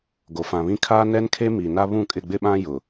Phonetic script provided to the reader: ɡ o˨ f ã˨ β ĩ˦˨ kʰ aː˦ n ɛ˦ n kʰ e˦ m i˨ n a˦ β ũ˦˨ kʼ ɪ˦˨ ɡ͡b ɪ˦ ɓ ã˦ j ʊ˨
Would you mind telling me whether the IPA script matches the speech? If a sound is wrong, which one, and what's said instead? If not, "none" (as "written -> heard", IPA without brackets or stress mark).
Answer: none